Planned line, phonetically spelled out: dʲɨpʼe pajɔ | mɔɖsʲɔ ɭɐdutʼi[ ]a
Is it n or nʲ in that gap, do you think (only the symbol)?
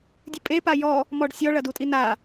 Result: n